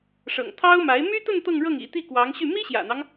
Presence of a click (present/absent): absent